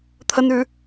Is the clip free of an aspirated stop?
no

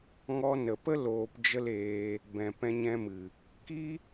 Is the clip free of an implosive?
yes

